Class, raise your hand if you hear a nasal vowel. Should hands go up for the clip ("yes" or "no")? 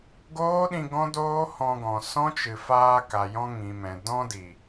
yes